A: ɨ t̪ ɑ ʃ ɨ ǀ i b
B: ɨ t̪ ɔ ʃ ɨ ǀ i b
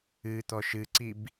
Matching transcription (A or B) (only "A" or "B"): B